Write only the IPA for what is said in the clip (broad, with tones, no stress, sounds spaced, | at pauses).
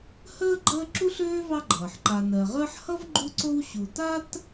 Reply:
h əː˥ ɡ͡ǃ əː˦ ǁ u˦ ɬ øː˦ v ɑ˦ ɡ͡ǃ ʌː˩ ħ ǃ a˨ n ɜ˩ ʁ əː˥ ħ h ʌ˥ v ɡ͡ǃ u˦ ǀ o˦ w ɕ u˨ t a˥ t